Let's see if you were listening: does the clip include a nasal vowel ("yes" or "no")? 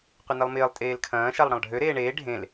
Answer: yes